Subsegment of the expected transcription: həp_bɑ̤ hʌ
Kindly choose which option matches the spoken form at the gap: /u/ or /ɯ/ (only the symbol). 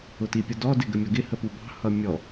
u